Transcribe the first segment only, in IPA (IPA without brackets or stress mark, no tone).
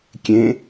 kʲ